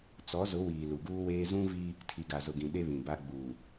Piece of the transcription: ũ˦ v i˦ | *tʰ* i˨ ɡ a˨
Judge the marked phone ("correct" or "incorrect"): correct